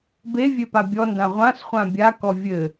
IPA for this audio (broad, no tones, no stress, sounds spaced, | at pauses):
b e vʲ e p a bʲ ɔ n d ã ʁʷ ã s χʷ ã bʲ a k ɔ vʲ ɘ